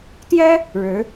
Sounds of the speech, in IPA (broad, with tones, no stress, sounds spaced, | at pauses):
t̪ j ɛ˥ | ɻ ɻ̩˧˥